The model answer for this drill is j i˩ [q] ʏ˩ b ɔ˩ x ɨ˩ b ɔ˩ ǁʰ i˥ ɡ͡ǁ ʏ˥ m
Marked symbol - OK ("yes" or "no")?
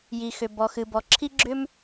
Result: no